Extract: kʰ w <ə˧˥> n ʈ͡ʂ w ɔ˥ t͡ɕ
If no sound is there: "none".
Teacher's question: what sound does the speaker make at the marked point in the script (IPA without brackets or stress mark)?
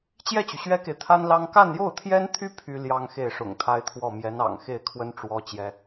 ə˥